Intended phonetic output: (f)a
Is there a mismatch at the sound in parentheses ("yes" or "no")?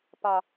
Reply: yes